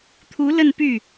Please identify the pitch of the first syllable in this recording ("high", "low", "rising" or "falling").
rising